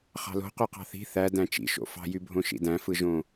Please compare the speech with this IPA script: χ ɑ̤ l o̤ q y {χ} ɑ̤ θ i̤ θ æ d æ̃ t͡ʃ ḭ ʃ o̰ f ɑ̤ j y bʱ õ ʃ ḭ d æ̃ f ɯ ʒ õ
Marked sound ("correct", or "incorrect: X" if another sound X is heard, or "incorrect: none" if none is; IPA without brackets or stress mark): incorrect: q